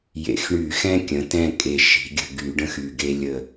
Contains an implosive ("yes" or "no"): no